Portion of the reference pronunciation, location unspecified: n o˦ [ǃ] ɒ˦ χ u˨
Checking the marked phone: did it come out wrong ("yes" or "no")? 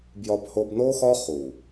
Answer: yes